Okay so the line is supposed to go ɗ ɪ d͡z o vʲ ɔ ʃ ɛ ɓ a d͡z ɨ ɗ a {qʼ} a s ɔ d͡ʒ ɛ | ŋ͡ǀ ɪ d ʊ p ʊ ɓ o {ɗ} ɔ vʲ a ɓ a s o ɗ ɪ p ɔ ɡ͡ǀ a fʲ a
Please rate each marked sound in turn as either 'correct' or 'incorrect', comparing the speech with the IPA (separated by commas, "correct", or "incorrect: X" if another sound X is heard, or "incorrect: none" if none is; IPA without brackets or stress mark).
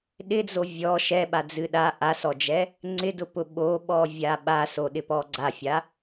incorrect: ʔ, incorrect: ɓ